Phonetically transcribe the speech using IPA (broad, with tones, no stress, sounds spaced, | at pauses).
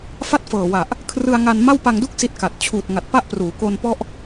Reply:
f a˥˩ t̚ f ɤː˨˩ w a˨˩ ʔ | kʰ r ɯ˧ a̯ ŋ a˧ n m a˥˩ w p a˧ ŋ d u˥˩ k̚ s i˦˥ t̚ k a˨˩ t̚ t͡ɕʰ uː˨˩ t̚ ŋ a˨˩ t̚ p a˥˩ ʔ p r uː˩˦ k o˧ n p ɔ˦˥ ʔ